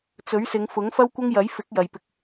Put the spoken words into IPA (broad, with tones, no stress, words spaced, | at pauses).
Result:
t͡sɵ˨˥ɥsɪ˨˧ŋfʊ˨˥ŋ fɐ˥wkʷɐ˥ŋjɐ˨˥j fɪ˨˥k̚ jɐ˨jpɪ˧k̚